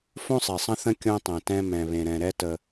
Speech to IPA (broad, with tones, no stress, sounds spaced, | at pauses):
f õ˦ sˤ e˨ sˤ ə̃˦ θ ə̃˦ kʲ õ˦ tˤ ɛ̃˨ t ɛ̃˦ m ɛ̃˨ β ẽ˨ ɾ ɛ̃˨ ɾ ɛ˦ t ə˦